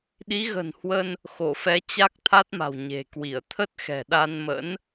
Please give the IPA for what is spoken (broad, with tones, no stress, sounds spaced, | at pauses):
ɗ i˨˦ ɣ ə̤˨˩ n h w ə˧ n | x o˧˩ f ɛ˨˦ t͡ɕ a˦˥ k̚ t̪ʰ a˦˥ t̚ m a̤˨˩ w ɲ e̤˨˩ k w i˧˩ ə̯ t̪ʰ ə˦˥ t̚ x ɛ̤˨˩ ɗ a˧ n m ə̰˧˥ n